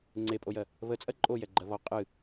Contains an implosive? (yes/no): no